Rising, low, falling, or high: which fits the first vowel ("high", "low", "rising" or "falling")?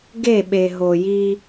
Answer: falling